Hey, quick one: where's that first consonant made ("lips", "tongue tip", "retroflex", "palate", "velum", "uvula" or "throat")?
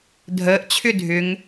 tongue tip